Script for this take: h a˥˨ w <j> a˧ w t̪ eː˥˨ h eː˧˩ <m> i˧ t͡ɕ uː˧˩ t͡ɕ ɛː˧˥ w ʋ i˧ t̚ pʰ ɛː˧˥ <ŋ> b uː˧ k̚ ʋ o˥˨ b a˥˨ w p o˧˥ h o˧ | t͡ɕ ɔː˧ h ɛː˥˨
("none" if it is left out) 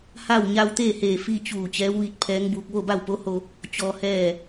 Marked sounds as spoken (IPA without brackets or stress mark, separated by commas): ɲ, f, ŋ